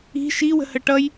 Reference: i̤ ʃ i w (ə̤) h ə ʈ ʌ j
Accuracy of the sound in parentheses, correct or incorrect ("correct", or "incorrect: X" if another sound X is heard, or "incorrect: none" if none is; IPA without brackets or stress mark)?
correct